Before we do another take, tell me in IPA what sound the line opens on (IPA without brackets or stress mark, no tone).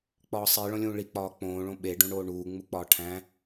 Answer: k͡p